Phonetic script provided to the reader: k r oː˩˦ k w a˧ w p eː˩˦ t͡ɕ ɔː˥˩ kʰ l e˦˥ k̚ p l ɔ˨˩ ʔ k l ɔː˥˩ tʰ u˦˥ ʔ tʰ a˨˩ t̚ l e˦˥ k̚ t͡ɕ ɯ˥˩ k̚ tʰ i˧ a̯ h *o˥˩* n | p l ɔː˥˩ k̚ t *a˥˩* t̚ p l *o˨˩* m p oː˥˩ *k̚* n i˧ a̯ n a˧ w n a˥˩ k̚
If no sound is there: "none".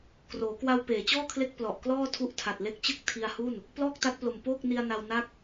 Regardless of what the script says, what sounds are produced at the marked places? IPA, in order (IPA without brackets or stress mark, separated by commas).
u˥˩, a˦˥, o˨˩, k̚